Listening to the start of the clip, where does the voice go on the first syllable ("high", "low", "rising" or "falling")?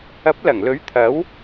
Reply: rising